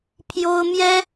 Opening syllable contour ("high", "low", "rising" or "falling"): high